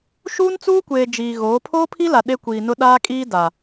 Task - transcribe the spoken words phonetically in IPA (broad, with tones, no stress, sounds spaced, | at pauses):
ʃ uː˦ n t͡s uː˦ kʷ eː˨ d͡ʒ iː˨ ɣ oː˨˦ pʰ oː˦ pʰ i˦ l a˨ ɗ e˦ kʷ iː˨ n ʊ˦ ɗ aː˦ kʼ iː˦ d a˨